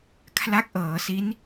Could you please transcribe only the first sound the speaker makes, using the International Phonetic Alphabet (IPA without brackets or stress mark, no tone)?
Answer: kʰ